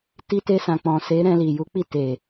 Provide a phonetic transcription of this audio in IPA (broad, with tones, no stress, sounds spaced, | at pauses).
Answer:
t i˧ t e˧ s ã˨ k͡p ɔ̃˨ s e˨˦ ɾ ɛ̃˧ l i˨ j u˨˦ k͡p i˦˨ t e˨